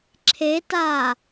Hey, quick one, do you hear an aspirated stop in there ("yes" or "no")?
yes